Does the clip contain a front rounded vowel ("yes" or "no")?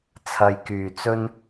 yes